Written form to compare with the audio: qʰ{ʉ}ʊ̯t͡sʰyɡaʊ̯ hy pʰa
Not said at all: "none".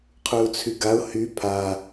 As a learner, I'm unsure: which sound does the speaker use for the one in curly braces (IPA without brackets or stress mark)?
ʉ